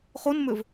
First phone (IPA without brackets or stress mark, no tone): χ